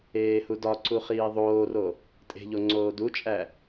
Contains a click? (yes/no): yes